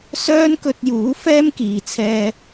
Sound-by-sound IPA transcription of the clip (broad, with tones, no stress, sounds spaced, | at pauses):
s œː˥ n k ɵ˧ t̚ j uː˨˥ f ɛː˥ m k iː˨ t͡sʰ ɛː˧